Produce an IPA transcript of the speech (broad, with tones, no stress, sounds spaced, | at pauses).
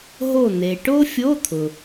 ɦ o˧˩ n̪ e˩ ʈ o˥ fʲ o˧˥˧ t̪ʰ ʊ˩